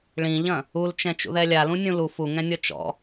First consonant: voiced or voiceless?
voiced